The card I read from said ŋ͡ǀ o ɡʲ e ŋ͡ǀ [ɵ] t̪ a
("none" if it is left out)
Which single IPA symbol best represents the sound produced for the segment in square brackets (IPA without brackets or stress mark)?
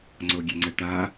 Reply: ə